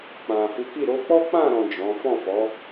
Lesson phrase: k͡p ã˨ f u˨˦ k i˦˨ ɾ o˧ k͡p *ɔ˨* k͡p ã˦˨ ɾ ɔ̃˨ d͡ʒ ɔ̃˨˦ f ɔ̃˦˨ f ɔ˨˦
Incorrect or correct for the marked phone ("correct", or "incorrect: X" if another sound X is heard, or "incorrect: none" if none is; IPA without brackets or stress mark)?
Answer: incorrect: ɔ˦